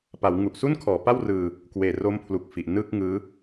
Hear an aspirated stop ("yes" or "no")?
yes